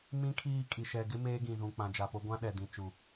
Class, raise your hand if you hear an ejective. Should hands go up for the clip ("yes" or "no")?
yes